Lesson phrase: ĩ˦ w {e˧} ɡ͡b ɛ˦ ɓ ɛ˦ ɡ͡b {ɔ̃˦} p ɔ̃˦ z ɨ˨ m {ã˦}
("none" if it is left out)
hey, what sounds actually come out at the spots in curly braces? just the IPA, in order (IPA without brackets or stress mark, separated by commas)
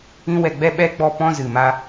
ɛ˧, ɔ˦, a˦